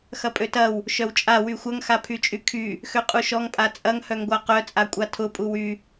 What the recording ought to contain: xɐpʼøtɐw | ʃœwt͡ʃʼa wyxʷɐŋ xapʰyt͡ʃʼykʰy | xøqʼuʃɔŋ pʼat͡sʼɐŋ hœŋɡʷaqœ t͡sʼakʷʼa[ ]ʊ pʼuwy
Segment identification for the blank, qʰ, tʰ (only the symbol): tʰ